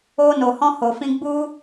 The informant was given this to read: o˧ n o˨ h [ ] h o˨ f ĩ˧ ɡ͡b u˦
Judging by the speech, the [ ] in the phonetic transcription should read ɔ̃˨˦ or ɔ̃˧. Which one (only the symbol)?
ɔ̃˧